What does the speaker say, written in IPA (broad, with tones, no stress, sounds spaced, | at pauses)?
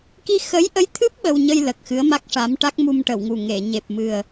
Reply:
k i˧ x ə˧˥ j ʔ ə˧˥ j t̪ʰ ɨ˦˥ p̚ ɓ ə˧ w ɲ ə˧ j l ə˨˩ k̚ x ɨ˧˥ ə̯ m a˦˥ k̚ ʂ a˧˥ m ʈ a˦˥ k̚ m u˧ m ʈ ə˨˩˨ w ŋ u˨˩ ŋ e˨˩˨ ɲ e˨˩ p̚ m ɨ˨˩ ə̯